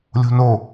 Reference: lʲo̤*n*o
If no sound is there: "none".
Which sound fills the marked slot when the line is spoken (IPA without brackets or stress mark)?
n